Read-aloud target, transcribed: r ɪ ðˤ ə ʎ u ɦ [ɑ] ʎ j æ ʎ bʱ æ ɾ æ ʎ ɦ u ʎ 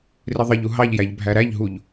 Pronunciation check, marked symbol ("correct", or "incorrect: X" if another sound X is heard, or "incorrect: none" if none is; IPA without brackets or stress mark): correct